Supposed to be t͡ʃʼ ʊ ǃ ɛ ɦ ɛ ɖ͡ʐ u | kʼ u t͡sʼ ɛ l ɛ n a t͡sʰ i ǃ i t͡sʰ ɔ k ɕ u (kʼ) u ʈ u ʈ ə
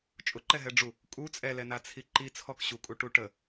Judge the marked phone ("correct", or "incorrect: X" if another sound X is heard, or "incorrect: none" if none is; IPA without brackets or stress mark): correct